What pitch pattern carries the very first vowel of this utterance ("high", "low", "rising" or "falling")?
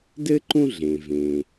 high